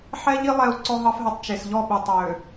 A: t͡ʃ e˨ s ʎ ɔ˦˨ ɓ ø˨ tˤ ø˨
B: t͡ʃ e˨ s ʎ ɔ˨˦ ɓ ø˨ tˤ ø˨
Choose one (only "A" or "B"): A